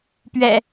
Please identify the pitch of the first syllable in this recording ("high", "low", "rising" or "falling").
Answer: low